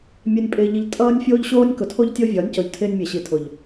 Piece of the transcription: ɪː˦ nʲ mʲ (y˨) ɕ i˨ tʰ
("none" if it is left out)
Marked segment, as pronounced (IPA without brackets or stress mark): e˨